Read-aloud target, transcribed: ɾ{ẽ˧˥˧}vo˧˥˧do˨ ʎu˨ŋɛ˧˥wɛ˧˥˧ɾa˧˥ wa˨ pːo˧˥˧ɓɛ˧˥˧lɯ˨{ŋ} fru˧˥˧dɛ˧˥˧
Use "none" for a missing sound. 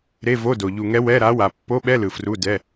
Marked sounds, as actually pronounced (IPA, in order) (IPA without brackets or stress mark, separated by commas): e˧˥˧, none